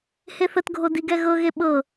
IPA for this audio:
h e θ ə t ɡʱ o d i ɡ ɛ ɣ ɤ ɣ e ɓ ɤ

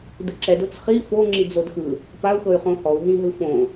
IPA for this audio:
d ɯ ǁ ɛ d o t͡s χ i f o ŋ͡ǁ i d͡z o d x ɯ | p a u̯ x ɤ y̯ χ õ h ɔ u̯ ɦ ĩ ɦ ɯ f õ

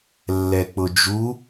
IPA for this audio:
lː ɛ k͡p ʊ d͡ʒ u

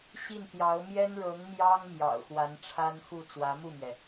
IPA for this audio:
ɕ i˥˩ n t̪ j ɑ˧˥ ʊ̯ m j ɛ˥ n ɻ ɤ˧˥ ŋ m j ɑ˥ ŋ m j ɑ̰˨˩ ʊ̯ x w a˧˥ n ʈ͡ʂʰ a˥ n x u˥˩ t͡s w ä˧˥ m u˥˩ m ɥ ɛ˩

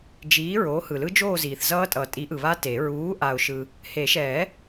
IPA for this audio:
d͡ʒ iː˨˥ ɹ oː˨˥ h ɯ˨ l ɯ˦˥ d͡ʒ oː˥˧ z iː˨ θ z ʌː˦˥ tʼ ʌː˨ tʼ i˨˥ ʔ ɯ˨ β a˦˥ t e˨˩˦ ɹ uː˨˥ ʔ a˨ ʊ̯ ʃ ɯ˨ | h e˨˩˦ ʃ ɛː˨˩˦

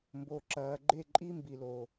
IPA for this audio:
m b o˨ ǁ ɐː˨ ɡ͡ǃ e˦˨ ǃʼ i˦ m b i˨ l o˨

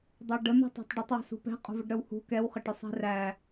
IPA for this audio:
dˤ æ ɖ ə n̪ ṳ tˤ æ̤ tˤ ɖ ɪ tˤ w ə̤ s ṳ p ɛ̤ qʼ ṳ v ə ɖ ɾ œ w h ṳ k ɛ w χ ə ʈ ʊ sˤ ɛ̤ r æ

